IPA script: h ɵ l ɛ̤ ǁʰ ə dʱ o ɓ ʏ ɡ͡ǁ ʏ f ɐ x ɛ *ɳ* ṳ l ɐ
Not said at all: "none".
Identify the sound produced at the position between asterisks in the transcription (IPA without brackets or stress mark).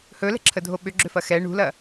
ɳ